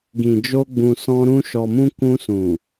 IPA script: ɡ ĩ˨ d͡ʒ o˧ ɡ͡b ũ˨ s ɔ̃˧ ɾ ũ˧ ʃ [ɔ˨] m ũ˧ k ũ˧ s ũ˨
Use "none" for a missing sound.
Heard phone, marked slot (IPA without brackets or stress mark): ɔ˨